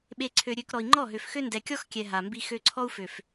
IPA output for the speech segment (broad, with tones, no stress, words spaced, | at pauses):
ɓe˨ǀʰø˨ɾʲø˨k ɾɔ˨i̯ŋ͡ǃɔ˦˨ɦø˨fxø˦ ndɛ˨kʲɔ˦xkʲɛ˨ ɦa˨mbi˦ xø˦ ǀʰɔ˦u̯fø˨f